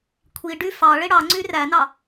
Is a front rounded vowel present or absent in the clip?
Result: present